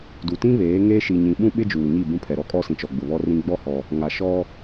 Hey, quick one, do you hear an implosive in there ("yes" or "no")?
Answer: yes